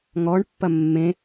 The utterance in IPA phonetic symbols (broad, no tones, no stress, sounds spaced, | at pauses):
ŋ ɔ ɳ pː ɐ mː ẽ